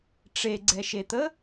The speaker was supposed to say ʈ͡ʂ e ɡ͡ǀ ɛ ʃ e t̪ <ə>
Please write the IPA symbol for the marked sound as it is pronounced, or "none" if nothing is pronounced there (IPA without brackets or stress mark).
ə